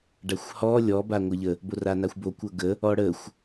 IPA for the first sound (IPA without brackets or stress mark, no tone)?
ɖ